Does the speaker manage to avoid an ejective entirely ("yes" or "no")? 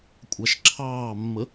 no